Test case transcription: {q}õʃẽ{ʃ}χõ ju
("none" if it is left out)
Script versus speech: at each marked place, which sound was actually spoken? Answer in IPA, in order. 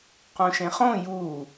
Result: q, none

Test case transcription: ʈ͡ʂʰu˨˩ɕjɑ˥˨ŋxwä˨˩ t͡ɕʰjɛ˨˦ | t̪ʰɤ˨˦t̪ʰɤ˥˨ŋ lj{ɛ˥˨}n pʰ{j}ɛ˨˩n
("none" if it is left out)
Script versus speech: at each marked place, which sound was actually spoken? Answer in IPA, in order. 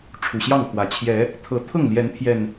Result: ɛ˨˦, j

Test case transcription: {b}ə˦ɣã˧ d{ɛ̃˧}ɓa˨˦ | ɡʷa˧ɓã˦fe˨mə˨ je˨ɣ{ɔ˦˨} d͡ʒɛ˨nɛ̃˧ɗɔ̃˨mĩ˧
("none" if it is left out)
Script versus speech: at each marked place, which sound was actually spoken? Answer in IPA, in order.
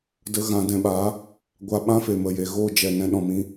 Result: d, ɛ̃˧, o˦˨

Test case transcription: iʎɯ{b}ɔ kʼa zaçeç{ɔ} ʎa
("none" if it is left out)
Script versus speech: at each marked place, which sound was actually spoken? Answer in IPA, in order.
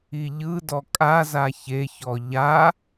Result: d, ɔ

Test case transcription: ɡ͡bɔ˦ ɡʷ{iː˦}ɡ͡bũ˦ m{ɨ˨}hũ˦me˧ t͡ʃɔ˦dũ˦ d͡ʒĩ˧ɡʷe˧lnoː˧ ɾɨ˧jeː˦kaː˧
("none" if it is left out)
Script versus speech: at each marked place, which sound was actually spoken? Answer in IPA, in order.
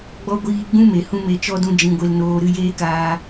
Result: iː˧, e˨

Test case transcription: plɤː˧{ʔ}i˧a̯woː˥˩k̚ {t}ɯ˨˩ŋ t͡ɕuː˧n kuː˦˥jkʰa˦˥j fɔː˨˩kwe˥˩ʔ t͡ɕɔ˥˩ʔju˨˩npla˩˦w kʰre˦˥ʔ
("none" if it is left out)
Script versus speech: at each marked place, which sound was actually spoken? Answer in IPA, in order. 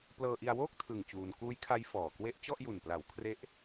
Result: ʔ, tʰ

